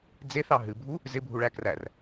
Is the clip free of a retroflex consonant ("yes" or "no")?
no